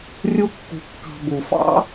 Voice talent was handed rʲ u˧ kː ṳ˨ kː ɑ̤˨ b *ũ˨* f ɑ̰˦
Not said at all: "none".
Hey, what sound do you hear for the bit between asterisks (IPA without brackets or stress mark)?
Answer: u˨